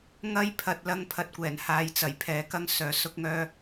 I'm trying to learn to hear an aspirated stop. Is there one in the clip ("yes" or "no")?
yes